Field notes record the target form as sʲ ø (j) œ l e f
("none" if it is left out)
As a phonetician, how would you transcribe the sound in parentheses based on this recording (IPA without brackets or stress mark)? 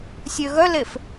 ɣ